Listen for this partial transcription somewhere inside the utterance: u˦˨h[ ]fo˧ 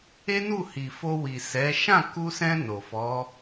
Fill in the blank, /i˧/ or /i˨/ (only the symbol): i˨